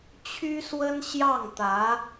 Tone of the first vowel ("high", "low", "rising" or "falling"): high